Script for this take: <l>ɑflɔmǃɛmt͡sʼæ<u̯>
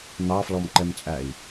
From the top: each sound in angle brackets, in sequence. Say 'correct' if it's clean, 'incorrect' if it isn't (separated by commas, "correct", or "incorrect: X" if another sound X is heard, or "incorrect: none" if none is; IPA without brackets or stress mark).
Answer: incorrect: n̪, incorrect: i̯